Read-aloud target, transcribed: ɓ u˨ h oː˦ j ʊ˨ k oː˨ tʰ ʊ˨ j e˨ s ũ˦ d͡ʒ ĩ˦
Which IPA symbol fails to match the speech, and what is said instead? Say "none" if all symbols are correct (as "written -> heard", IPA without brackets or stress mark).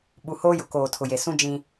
none